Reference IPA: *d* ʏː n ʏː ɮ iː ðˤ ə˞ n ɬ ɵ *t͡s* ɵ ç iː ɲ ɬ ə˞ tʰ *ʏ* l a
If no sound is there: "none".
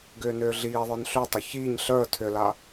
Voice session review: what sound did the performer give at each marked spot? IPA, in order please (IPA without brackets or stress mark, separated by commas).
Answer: ɡ, tˤ, ʏ